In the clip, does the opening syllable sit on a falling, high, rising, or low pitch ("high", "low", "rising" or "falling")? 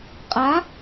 rising